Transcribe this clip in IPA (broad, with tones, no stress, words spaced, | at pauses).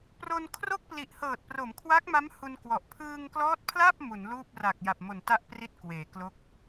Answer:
pro˧nkʰro˥˩k̚pli˨˩ʔhɤː˨˩t̚ pro˩˦mkʰwa˦˥k̚ma˦˥m hu˧nkwɔ˨˩ʔ pʰɯː˧ŋklɔː˦˥t̚pʰla˥˩p̚ mu˩˦nluː˥˩p̚ra˨˩k̚ ja˨˩p̚mo˨˩nta˥˩ʔpri˦˥t̚ kweː˩˦klo˥˩k̚